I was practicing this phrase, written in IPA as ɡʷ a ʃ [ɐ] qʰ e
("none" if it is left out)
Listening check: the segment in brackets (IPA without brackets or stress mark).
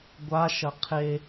ɐ